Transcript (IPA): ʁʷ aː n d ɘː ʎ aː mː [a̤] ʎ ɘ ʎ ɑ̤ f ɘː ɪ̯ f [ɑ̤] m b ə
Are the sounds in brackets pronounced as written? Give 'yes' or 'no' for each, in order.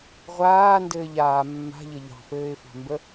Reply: yes, yes

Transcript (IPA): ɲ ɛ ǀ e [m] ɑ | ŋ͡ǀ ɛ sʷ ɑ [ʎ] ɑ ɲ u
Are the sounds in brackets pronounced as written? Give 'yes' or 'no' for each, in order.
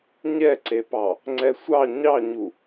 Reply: no, no

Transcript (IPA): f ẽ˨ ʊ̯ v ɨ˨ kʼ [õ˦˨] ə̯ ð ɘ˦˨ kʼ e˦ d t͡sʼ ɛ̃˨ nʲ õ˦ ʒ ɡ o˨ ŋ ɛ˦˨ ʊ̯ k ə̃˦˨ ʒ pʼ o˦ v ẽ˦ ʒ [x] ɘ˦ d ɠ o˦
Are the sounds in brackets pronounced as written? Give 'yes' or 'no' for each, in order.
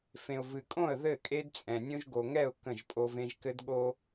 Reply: yes, no

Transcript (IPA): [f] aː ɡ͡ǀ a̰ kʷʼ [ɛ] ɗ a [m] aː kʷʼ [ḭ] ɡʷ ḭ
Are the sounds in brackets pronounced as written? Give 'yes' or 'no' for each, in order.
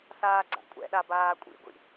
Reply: no, no, no, yes

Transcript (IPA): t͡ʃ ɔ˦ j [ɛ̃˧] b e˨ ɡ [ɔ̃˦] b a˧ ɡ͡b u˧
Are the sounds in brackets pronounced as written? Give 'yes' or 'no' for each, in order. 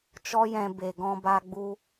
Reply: yes, no

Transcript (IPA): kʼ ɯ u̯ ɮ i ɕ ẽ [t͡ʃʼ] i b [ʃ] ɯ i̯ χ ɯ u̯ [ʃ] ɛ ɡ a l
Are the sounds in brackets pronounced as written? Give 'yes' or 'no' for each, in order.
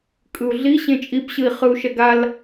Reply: yes, no, yes

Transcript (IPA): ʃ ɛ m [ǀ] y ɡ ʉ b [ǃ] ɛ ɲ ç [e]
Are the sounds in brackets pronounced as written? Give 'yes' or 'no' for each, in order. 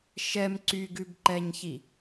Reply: yes, yes, no

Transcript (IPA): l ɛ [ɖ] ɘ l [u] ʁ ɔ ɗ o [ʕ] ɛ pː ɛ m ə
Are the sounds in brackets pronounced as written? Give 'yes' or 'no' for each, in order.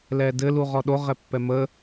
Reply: no, yes, no

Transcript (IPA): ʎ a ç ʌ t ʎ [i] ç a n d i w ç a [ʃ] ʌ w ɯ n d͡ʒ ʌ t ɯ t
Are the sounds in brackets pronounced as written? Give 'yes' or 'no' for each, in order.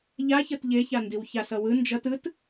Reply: no, no

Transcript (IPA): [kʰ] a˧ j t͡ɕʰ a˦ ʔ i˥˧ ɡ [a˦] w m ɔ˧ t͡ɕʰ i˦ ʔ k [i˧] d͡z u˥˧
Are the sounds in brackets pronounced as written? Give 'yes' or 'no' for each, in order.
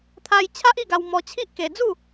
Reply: no, no, no

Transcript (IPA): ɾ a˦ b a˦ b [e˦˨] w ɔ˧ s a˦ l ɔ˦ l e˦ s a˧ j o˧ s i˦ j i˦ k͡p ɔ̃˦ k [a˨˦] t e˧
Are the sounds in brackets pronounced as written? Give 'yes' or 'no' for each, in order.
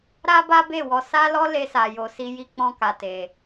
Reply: yes, no

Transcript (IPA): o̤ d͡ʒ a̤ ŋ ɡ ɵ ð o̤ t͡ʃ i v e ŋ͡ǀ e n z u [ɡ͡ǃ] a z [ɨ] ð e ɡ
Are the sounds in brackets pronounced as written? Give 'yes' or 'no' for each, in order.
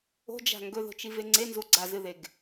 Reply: no, yes

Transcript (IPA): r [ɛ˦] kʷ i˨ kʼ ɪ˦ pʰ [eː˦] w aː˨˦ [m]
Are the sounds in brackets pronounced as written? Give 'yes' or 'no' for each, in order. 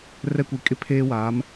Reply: yes, yes, yes

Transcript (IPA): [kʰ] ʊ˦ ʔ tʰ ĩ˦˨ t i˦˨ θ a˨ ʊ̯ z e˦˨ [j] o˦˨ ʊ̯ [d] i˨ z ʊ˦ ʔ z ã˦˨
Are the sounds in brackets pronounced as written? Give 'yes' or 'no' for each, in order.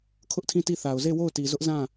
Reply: yes, no, no

